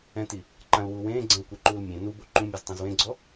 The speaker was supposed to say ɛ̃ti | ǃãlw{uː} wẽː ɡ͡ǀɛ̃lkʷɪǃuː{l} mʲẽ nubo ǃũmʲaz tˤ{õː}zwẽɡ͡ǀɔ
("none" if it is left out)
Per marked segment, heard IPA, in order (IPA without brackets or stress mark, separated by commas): uː, l, õ